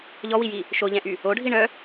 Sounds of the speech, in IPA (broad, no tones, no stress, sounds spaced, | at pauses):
ʎ ɔ w i j i | ʃ o ʎ ɛ̃ ʔ y | o ɖʱ i ɳ œ